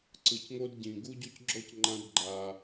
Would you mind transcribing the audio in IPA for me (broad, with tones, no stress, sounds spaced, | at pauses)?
ǀ ɯ˨ c ŋ o˧ d ɟ ĩ˨ ɡ u˦ ɟ o˦ c ɡ͡ǁ ɔ˦ c ŋ͡ǃ ã˧ d ɡ͡ǃ a˨